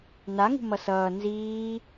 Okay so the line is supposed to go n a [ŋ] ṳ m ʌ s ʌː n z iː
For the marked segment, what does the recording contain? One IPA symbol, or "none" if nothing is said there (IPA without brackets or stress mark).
ŋ